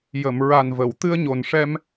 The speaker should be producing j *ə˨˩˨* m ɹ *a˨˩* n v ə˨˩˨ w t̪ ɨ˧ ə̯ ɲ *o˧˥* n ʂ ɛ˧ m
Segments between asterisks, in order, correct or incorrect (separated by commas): correct, correct, incorrect